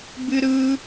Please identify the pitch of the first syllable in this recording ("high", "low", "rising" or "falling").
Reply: high